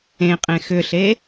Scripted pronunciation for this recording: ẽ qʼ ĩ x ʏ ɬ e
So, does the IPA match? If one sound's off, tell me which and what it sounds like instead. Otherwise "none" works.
ĩ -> ẽ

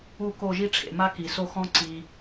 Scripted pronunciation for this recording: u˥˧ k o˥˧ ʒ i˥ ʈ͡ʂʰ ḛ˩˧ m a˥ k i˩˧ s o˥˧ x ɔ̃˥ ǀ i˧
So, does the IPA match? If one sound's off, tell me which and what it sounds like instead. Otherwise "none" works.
none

